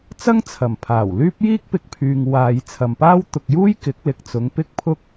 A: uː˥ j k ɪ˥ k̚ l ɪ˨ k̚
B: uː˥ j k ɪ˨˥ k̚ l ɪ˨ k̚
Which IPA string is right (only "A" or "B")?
B